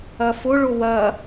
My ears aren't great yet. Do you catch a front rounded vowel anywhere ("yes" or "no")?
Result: no